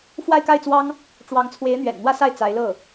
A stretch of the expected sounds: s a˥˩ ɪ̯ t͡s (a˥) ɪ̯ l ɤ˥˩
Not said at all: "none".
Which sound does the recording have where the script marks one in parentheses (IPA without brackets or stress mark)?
a˧˥